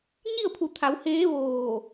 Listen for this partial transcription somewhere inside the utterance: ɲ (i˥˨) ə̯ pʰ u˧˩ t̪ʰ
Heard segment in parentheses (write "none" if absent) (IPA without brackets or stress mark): i˥˨